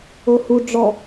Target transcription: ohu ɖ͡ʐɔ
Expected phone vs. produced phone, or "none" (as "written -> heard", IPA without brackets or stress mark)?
none